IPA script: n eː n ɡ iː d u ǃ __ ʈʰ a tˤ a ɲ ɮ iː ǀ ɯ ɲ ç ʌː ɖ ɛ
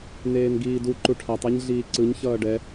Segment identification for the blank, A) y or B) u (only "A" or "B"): B